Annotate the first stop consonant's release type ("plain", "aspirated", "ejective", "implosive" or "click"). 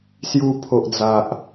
aspirated